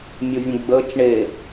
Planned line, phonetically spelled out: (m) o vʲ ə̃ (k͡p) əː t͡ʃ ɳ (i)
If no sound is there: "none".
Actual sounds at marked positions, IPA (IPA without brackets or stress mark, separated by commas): mʲ, ɡ͡b, e